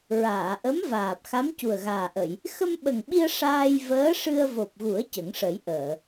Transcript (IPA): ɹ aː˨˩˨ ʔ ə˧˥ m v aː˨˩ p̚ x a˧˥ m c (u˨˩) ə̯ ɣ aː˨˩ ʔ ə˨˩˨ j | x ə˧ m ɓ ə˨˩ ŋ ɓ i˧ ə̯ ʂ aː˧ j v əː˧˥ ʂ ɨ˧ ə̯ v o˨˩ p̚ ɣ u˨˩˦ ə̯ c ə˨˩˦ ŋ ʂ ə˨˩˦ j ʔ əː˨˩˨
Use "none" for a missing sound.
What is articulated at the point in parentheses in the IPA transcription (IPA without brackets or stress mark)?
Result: u˨˩